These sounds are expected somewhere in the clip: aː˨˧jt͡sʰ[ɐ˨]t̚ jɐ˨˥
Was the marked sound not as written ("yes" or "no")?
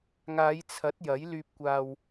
yes